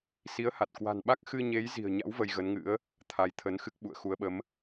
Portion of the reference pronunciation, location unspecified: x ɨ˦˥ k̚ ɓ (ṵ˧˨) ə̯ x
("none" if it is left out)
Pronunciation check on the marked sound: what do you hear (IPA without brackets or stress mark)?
ṵ˧˨